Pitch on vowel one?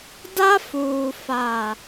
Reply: high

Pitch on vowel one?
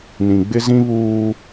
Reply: low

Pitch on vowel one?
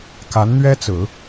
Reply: rising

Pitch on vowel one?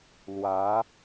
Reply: rising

